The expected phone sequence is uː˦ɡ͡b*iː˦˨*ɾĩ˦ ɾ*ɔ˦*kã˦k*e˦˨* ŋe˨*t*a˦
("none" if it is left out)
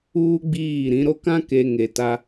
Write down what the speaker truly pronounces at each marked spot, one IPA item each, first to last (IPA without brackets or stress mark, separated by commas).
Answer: iː˦˨, o˦, e˨, t